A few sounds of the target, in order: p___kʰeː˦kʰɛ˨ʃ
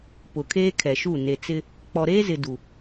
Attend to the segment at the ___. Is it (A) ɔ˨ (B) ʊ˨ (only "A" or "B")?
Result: B